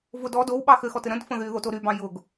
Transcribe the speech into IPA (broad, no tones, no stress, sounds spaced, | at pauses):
v ʊ d ɔ d o w ɓ ɑ x ɘ x ɔ t ɘ ɾ ə̃ d f ə̃ ð y ð o t o ɾ y b ɑ̃ j ʊ ɡ